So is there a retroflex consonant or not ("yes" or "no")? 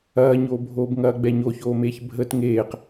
no